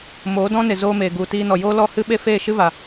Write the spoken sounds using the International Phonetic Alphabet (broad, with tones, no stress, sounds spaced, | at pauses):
m oː˨˦ d ɔ̃˦ n e˨ z oː˦ m eː˨ ɡ u˨ t iː˧ n ɔ˨ j oː˦ l ɔ˦˨ h ɨ˦ ɓ e˦ f eː˦˨ ʃ ɨ˦ v a˨